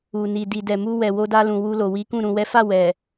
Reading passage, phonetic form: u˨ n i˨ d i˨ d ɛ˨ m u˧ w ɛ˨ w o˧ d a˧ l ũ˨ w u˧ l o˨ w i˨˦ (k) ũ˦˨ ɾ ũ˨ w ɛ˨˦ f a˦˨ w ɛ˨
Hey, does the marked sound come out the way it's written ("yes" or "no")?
yes